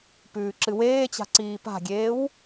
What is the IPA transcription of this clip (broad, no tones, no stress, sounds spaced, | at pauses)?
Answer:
p ʉː ǁ ɨ w eː t͡ɕ a̤ ǀ iː p a̤ ɡʲ eː w